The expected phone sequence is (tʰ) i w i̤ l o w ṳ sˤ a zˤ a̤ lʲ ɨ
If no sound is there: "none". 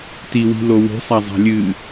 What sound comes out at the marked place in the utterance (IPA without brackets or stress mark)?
t